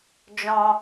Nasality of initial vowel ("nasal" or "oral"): nasal